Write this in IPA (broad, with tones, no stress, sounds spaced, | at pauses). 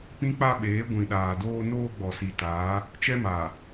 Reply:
p ĩ˦ k͡p a˦ ɓ eː˨˦ ɡʷ ĩ˨ ɗ aː˨ d oː˦ n oː˦ ɡ͡b ɔ˨ s i˨ t aː˨˦ | t͡ʃ ɛ˦ m aː˨